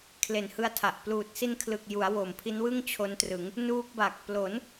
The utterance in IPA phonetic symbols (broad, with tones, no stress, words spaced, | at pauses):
kʰle˨˩nhɯ˧a̯tʰa˨˩ʔ pluː˨˩t̚si˧nkʰlɯ˨˩k̚ju˩˦a̯ wo˨˩mpʰi˦˥nwɯ˥˩ŋ t͡ɕʰo˦˥ntrɯ˩˦ŋ | nuː˦˥k̚ ba˨˩k̚plo˩˦n